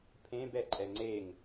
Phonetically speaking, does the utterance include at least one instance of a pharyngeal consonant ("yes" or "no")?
no